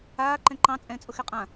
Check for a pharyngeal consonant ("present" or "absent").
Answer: absent